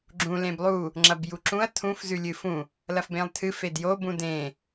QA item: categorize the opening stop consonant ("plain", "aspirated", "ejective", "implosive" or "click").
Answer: click